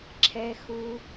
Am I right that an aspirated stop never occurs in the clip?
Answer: no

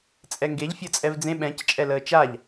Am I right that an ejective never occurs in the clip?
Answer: no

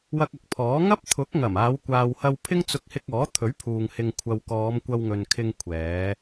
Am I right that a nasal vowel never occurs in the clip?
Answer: yes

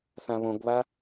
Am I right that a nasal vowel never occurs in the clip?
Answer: no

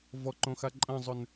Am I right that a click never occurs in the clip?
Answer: no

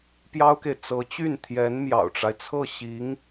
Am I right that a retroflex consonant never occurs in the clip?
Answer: no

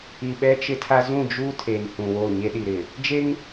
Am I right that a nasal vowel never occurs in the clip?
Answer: no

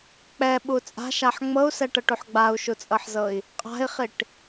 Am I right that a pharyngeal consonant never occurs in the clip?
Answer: no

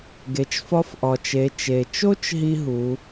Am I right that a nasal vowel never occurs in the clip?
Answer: yes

